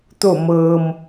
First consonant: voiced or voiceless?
voiceless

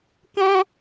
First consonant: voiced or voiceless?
voiceless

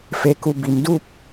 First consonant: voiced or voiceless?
voiceless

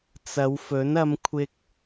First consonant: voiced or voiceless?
voiceless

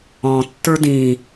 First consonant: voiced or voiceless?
voiceless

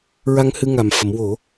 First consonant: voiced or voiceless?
voiced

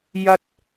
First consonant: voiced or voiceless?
voiced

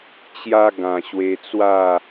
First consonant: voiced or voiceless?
voiceless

